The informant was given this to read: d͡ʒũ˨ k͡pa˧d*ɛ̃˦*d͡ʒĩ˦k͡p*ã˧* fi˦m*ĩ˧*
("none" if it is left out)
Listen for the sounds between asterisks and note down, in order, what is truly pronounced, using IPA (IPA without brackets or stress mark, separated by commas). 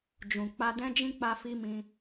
ɛ̃˦, a˧, ĩ˧